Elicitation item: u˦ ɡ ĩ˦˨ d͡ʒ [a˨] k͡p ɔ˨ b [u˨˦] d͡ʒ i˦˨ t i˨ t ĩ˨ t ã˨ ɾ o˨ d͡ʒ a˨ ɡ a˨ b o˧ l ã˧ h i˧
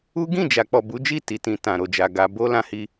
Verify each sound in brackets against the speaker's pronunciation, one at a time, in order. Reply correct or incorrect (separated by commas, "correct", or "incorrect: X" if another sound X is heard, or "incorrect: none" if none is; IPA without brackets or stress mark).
correct, correct